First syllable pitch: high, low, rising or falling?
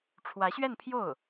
rising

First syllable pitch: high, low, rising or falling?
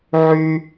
high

